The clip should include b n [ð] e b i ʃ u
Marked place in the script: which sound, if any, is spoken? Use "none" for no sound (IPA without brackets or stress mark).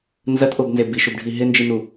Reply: z